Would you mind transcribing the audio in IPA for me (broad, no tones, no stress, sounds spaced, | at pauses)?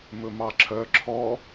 m ɵ m ɑ ǁʰ œ ǁʰ ɔ